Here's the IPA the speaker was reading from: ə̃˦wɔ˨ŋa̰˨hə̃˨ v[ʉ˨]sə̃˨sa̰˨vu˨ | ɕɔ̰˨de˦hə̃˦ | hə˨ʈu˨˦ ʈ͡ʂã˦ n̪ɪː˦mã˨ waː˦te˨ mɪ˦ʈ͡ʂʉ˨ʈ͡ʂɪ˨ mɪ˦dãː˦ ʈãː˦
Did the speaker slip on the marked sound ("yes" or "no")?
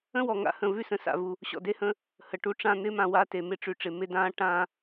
yes